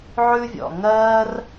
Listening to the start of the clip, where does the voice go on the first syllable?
high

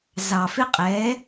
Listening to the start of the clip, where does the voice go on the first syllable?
low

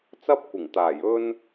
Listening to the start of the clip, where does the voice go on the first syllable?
high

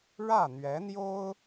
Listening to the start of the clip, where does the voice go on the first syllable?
falling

